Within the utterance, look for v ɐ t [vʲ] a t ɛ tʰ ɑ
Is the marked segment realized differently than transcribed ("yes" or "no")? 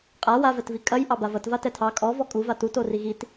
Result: yes